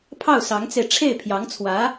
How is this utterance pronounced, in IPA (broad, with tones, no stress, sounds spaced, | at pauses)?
pʰ ɑ˥˩ ʊ̯ s ɑ˧˥ ŋ t͡s e˧ ɪ̯ ʈ͡ʂʰ e˥˩ ɪ̯ pʰ j ɑ˧˥ ŋ t͡sʰ w ä˧˥